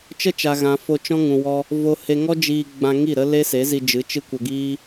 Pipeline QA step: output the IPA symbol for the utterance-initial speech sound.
t͡ʃ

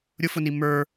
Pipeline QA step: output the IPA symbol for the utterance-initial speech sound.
ɾʲ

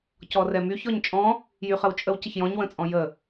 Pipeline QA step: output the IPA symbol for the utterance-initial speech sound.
c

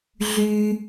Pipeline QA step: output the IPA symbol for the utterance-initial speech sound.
ɮ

